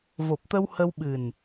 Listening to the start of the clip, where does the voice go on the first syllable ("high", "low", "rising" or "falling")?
low